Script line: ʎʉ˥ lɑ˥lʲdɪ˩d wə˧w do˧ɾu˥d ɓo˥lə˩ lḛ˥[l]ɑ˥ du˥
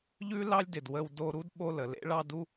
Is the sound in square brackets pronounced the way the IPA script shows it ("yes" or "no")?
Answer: no